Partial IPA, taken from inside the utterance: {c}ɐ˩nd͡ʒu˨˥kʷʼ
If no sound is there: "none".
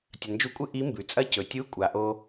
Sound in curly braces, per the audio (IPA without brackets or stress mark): tʲ